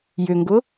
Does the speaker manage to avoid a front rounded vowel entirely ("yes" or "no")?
no